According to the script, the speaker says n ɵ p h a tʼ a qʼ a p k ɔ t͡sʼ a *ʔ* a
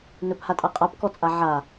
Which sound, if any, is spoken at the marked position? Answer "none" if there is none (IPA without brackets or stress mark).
ʕ